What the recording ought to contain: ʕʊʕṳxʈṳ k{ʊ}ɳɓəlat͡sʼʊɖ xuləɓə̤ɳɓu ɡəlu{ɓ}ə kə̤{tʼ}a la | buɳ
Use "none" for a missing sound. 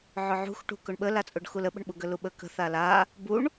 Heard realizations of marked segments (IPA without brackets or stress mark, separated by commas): ʊ, ɓ, θ